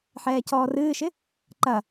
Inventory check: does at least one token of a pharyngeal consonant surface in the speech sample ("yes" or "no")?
yes